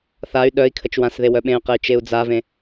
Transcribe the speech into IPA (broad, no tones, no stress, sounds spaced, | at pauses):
θ a y̯ ɗ œ i̯ kʰ ə t͡ʃ w ã s ð e w œ ɓ ẽ y̯ q e y̯ t͡ʃ e u̯ d͡z a v ẽ